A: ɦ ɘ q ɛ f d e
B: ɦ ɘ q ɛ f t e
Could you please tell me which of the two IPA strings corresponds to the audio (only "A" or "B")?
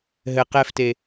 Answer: B